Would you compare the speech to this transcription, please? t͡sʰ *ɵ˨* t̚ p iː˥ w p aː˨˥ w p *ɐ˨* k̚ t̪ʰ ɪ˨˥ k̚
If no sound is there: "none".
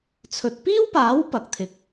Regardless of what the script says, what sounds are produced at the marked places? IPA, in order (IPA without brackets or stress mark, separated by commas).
ɵ˨, ɐ˨